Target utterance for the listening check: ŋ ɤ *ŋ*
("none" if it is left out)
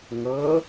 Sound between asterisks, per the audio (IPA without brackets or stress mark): none